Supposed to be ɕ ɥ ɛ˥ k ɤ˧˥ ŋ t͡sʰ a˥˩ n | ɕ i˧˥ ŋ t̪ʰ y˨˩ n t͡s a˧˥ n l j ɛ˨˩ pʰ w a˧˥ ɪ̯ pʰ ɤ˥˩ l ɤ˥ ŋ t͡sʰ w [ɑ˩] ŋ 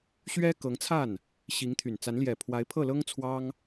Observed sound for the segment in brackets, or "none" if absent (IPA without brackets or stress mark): ɑ˥